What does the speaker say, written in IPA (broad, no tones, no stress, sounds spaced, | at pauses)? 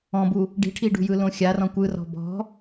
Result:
ɔ̃ b u | ɖ i̤ ʈʰ i ɖ ṳ j ɯ l õ xʲ a r ɔ̃ kʷ ɯ r ɔ̤ b ɔ̤